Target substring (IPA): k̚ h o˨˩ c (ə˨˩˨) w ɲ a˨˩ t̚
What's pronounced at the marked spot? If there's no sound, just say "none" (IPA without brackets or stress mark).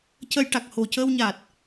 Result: ə˧